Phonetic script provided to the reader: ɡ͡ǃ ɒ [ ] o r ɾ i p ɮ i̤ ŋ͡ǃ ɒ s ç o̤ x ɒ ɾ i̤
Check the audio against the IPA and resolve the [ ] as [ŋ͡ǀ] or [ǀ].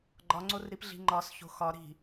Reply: ŋ͡ǀ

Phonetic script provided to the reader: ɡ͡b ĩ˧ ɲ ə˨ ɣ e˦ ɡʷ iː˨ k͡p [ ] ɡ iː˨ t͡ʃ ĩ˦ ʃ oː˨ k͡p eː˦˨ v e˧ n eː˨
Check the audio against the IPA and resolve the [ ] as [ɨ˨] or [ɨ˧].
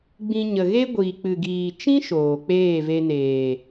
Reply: ɨ˨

